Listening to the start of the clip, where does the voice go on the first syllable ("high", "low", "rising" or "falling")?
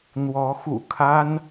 rising